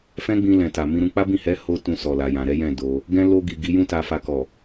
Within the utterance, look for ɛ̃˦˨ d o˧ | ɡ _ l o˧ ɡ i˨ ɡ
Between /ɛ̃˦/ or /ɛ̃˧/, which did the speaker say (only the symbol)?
ɛ̃˧